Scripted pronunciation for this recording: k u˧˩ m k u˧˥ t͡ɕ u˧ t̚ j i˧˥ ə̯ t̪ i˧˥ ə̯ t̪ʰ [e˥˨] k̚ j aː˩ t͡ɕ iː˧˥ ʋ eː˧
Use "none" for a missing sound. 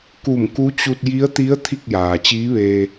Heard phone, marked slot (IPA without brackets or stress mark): i˥˨